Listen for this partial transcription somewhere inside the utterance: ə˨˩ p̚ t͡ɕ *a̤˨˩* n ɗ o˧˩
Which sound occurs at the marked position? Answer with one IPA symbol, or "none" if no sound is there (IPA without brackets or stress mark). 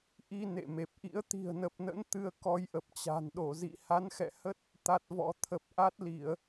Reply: a̤˨˩